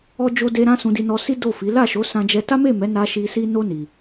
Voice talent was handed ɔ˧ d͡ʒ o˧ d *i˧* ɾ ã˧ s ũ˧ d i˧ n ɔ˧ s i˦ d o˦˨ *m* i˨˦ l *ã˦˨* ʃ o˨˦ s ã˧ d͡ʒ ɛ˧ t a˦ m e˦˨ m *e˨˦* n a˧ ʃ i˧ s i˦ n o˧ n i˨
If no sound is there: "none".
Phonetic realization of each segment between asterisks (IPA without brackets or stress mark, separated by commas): e˧, f, a˦˨, ɛ˨˦